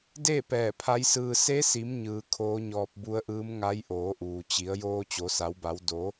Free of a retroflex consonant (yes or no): yes